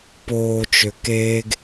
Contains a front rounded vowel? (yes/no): yes